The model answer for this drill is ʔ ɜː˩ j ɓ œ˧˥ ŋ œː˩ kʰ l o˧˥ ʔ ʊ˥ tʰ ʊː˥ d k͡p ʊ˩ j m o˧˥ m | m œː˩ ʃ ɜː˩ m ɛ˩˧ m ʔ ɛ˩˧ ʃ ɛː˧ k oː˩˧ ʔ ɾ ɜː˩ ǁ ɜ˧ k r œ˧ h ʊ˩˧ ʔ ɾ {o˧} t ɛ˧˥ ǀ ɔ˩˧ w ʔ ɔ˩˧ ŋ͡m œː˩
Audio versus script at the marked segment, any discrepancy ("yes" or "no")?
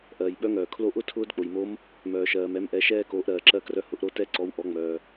no